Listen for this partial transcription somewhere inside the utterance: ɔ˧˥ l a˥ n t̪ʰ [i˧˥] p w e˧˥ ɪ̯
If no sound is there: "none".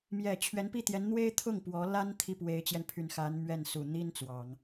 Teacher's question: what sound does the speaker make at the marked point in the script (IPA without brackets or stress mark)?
i˥˩